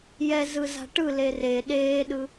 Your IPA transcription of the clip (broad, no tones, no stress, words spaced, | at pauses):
jɛ zɯza̤ʈɯ lere ɗeːɗɯ